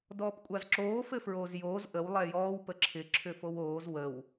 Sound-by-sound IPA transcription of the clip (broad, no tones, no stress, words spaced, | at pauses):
dɔːpkʷʼazǁoː fɘfɹoːzjoːz ʔəw lˠɛjɔːw pəǁʰɪ ǁʰʏfowoːz wəw